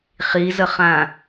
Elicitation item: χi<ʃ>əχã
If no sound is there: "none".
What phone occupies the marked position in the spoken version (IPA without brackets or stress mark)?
z